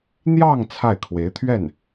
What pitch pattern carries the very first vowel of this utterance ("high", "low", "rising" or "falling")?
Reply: falling